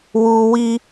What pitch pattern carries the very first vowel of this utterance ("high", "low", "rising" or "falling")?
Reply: high